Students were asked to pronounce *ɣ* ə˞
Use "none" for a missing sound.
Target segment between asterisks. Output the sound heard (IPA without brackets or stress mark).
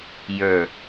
j